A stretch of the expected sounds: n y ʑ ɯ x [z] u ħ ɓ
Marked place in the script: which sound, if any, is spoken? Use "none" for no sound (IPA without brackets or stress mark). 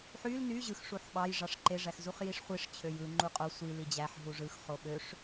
ʂ